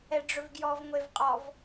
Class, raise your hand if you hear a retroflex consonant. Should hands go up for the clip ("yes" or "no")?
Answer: yes